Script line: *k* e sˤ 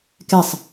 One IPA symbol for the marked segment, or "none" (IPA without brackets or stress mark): k